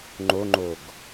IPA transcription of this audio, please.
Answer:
ŋ͡ǃ o ŋ͡ǃ o ɡ

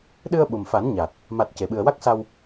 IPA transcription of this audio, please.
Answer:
ɗ ɨ˧ ə̯ ɓ u˨˩ m f a˨˩˦ n ɲ a˨˩ t̚ | m a˨˩ t̚ c e˨˩˨ ɓ ɨ˨˩ ə̯ w a˦˥ k̚ s a˧ w

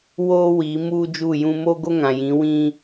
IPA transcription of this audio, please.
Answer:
w oː˦ w i˨˦ m uː˦ d͡ʒ u˦˨ j ũ˦ m o˦ ɡ o˦ ŋ ã˨ j ĩ˨˦ w ĩ˦

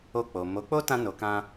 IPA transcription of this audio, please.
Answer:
o˧ k͡p o˨ m o˨˦ k͡p o˦ t ã˧ n o˨ k ã˧

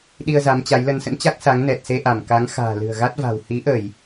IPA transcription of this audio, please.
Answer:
ɗ i˧ ə̯ z a˨˦ m t͡ɕ a˨˦ j l ə˧ n s ə̰˧˥ n t͡ɕ a˦˥ k̚ s a˨˦ ŋ n ɛ˨˩ t̚ s e˧ ʔ a˧˩ m k a˨˦ ŋ x a̤ː˨˩ l ɨ̤˨˩ ə̯ ɣ a˦˥ t̚ v a̤˨˩ w h i˨˦ ʔ ə˧˩˨ j

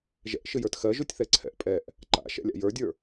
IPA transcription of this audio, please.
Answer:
ʒ ɛ̰ ʔ ʃ ɨ j ə˞ t x ɜ ʒ u tʲ θ ɛ ǀʰ ɛ̰ ʔ pʼ ɛ ʔ | ǃ a̰ ʃ ɛ̰ lʲ a̰ j ə˞ dʲ ə˞

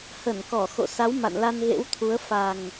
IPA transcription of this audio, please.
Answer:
h ə˧˩ n k ɔ˧˩ x o̰˧˨ s a˨˦ w m a̰˧˨ n l a˧ n ɣ ḛ˧˥ w t̪ʰ u˨˦ ə̯ f a˨˩ ŋ

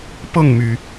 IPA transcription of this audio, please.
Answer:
p ɤ˥˩ ŋ m y˩

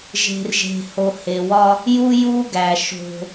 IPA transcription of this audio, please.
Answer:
ʒ e̤˨ r ʒ e̤˨ h o˨ h e˨ w ɒ˦ | j u˦ j u˦ ɡ æ˨ ʃ o̤˦

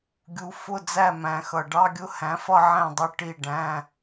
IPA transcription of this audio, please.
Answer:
ɡʲ u˩˧ f ʊ˥˧ d͡z æ˥˩ m æ̃˩˧ x ʌ˨˩ ɖ ɑ˧˥˧ ɡʲ ʊ˥˧ h æ̃˩˥ f ʌ˥˧ ʕ æ̃˥˩ dˤ ʊ˧˥˧ ʈ i˥˩ ɖ æ̃˧˥˧

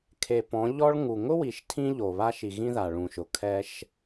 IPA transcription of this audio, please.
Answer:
kʰ e˨ p ɔ̃˨˦ ʎ ɔ˦ ɭ ŋ u˨ ŋ ʊ˦ w i˨ ʃ tʰ ĩ˦ ʎ o˨ β a˦ ʃ i˨ ɣ ĩ˦ ð a˨ ɭ ũ˨ ʃ ʊ˨ kʰ ɛ˦ ʃ

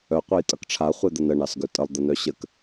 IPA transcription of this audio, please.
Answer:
œ qʷ ʌ j tʼ ʌ k ʈ͡ʂʰ a χʷ e d̪ ə n ə ɳ ɑ s ɡ œ tʼ ə lˠ d̪ ə n œ ɕ ə k

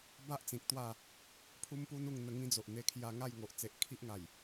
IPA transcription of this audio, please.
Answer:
b a˦ ʔ t͡s ĩ˨ k̚ t̪ w a˥˧ | pʰ u˦ m p u˦ n u˧ ŋ n̪ ə˧ ŋ ĩ˦ d͡z o˨ ʔ n̪ e˧ kʰ j a˧ ŋ a˥˧ j ŋ o˨ ʔ t͡s e˨ ʔ kʰ i˦ ʔ ŋ a˨˩ j

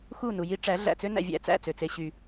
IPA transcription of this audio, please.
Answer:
x u˦˨ n u˨ j i˦ ʈ͡ʂ æ˨˦ ɮ æ̰˨ t͡s ø˦ n æ̰˨ vʲ æ̰˨ t͡s æ̰˦˨ t͡s ø˨ t͡s e˦ ɕ y˦

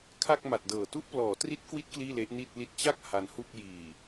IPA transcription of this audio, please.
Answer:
kʰ a˥˩ k̚ m a˨˩ t̚ d ɤː˨˩ t u˦˥ ʔ p l ɔː˩˦ t r i˦˥ t̚ k w i˦˥ t̚ k l iː˥˩ l e˦˥ ʔ n i˥˩ t̚ l i˥˩ t̚ t͡ɕ a˥˩ k̚ h a˧ n h u˥˩ k̚ j iː˨˩

